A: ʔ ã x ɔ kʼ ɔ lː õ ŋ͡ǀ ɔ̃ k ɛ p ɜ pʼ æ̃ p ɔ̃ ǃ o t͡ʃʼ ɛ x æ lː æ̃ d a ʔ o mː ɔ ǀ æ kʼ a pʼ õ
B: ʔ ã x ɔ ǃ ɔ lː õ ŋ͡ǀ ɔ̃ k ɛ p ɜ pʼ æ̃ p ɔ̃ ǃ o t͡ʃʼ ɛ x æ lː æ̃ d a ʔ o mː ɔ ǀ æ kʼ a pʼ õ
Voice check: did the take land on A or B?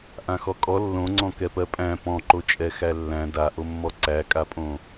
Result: A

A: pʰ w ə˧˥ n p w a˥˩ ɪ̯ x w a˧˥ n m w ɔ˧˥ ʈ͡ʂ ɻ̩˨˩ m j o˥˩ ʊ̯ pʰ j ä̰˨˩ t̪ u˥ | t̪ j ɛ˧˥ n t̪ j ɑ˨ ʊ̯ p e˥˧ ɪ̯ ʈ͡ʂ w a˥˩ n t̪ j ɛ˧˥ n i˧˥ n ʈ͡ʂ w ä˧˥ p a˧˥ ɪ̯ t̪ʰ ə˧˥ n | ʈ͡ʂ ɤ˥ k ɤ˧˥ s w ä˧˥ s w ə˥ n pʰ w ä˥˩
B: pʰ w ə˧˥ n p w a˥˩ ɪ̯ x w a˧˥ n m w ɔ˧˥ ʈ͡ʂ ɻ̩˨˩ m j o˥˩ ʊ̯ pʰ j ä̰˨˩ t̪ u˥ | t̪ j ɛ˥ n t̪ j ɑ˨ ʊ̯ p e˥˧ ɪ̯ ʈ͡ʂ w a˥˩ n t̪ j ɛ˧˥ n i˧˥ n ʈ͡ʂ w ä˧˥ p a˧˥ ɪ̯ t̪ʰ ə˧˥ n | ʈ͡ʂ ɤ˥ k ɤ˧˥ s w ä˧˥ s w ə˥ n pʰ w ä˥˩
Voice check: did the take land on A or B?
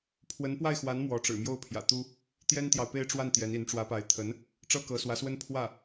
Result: B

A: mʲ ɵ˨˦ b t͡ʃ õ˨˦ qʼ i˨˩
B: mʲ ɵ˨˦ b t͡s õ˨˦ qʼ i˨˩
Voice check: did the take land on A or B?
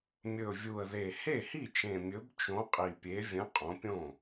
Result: A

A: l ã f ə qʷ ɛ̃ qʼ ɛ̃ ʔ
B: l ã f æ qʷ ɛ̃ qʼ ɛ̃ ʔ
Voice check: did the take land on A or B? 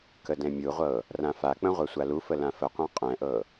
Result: A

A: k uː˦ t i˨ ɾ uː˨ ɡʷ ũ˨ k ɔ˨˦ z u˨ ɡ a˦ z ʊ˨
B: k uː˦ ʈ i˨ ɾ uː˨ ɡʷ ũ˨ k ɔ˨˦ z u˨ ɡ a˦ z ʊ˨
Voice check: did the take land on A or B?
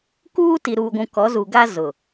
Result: A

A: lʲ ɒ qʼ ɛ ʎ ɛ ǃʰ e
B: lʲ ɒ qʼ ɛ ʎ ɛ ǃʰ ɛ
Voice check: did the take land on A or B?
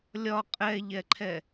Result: B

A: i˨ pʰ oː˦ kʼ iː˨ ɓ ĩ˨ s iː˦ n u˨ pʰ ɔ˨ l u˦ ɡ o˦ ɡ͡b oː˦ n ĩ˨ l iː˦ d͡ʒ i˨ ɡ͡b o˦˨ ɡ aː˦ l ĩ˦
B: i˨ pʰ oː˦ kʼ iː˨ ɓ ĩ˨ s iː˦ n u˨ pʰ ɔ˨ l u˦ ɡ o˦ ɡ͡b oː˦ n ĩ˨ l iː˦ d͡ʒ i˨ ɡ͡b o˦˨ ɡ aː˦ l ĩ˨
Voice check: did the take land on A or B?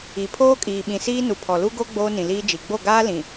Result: B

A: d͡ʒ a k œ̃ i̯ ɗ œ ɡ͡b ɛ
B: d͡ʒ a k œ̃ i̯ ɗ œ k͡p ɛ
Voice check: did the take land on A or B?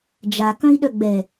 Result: A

